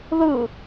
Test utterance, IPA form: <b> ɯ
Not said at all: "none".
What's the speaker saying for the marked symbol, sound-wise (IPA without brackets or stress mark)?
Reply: ð